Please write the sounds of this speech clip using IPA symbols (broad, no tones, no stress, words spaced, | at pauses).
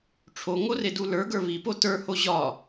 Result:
ʈ͡ʂʰoŋo redulə˞ɡə˞ βipo tə˞ho ʑɒ